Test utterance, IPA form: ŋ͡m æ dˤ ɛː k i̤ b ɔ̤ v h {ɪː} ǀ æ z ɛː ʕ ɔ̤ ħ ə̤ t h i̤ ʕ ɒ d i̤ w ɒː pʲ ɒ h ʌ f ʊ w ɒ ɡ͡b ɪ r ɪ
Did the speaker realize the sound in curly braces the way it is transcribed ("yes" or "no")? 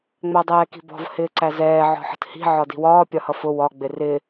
yes